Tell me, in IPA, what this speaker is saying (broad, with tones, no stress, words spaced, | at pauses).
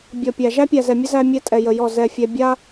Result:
bʲɔ˨pʲæ˨ ʒæ˦pʲæ˨zɛ˨mʲə˦ zæ˧ mʲɛ˧ tʼɛ˨jə˨ jɔ˦˨zɛ˧fʲɛ˧ bʲa˦